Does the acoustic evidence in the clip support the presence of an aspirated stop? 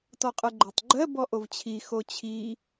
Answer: yes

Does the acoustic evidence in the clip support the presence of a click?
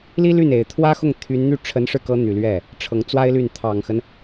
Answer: no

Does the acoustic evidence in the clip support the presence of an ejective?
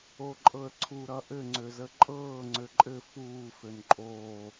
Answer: yes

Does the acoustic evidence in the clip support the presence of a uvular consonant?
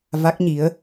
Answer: no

